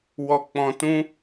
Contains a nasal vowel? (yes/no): yes